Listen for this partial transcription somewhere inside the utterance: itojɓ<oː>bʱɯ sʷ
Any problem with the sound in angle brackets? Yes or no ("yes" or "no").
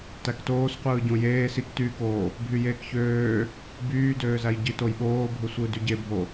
no